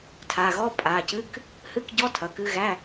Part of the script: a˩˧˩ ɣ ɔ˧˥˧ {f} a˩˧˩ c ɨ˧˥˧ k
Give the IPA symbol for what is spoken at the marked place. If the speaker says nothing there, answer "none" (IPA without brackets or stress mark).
pʼ